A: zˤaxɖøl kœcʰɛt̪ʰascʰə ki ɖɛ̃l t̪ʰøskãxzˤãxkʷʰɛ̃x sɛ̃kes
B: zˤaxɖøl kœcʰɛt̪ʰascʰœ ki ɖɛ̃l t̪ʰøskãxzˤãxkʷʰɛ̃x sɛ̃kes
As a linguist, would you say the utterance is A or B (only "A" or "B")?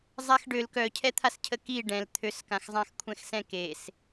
A